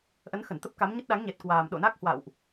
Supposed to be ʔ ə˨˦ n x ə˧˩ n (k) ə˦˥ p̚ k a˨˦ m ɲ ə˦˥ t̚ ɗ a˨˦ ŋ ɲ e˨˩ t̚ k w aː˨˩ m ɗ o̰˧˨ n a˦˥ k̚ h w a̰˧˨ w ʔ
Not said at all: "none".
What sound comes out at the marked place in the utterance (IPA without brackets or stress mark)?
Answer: t̪